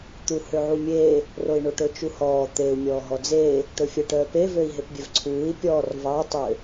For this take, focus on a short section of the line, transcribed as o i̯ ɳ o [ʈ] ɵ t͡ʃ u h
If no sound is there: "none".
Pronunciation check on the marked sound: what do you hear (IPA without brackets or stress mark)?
ʈ